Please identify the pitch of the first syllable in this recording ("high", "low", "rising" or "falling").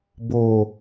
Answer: low